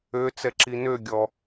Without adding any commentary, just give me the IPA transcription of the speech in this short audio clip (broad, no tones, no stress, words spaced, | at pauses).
ø t͡sɛǁinø ɡʲɔ